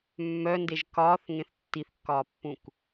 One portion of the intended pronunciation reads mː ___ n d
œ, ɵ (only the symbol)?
œ